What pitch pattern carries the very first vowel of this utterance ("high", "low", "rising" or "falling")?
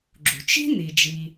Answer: low